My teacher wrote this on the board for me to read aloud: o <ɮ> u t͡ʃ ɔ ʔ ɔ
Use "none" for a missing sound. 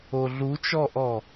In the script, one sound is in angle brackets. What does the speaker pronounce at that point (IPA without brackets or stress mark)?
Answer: ɮ